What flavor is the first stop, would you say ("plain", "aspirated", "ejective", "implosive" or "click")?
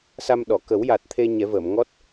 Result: implosive